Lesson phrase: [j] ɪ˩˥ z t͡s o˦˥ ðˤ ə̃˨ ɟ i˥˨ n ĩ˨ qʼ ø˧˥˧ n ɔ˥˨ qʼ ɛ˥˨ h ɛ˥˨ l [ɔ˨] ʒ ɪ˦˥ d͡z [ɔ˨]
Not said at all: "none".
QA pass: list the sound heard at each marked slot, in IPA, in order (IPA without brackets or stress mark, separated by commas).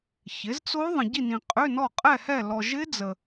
ç, ɔ˨, ə˨